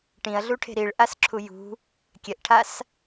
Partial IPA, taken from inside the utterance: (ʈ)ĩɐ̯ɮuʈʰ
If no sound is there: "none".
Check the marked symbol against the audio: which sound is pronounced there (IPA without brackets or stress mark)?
ʈ